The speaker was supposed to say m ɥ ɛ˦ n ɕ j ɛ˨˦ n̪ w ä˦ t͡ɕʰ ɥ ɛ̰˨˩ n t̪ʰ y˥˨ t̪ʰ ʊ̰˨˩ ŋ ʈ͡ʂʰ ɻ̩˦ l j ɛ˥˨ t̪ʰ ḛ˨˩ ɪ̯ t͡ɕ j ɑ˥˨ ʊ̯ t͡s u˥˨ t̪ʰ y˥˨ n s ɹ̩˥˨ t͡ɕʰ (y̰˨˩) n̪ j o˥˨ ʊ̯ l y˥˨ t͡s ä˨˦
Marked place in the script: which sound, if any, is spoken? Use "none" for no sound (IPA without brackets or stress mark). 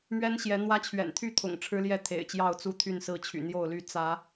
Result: y̰˨˩